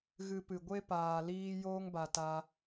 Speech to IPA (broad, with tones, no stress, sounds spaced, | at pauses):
ɣ ɨ˧ p ɨ˨ ɡʷ e˦ p aː˨ l iː˧ j oː˦ ŋ b a˨ t a˧